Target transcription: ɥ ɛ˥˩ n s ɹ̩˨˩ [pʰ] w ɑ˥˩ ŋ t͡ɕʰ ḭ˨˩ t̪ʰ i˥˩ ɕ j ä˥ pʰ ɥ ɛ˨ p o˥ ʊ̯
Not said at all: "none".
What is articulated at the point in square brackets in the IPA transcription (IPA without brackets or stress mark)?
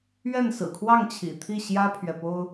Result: kʰ